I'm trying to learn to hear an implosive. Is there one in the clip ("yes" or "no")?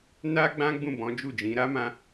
no